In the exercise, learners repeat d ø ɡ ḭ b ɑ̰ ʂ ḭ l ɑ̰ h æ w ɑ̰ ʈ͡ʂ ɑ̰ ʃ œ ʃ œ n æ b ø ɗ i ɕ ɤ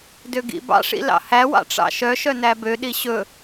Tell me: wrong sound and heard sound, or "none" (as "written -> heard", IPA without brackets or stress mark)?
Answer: ɤ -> ɵ